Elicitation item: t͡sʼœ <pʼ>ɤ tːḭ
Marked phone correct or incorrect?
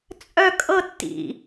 incorrect: kʼ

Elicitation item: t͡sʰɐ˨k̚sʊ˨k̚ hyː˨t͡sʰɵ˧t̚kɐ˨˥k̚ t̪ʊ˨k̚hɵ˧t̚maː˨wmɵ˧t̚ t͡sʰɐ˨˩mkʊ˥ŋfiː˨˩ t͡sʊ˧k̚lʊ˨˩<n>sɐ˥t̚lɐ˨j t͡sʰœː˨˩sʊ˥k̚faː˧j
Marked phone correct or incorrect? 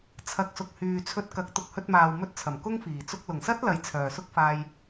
incorrect: ŋ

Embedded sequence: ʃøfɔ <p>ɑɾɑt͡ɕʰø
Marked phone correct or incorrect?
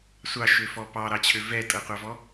correct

